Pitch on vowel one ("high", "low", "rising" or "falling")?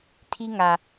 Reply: high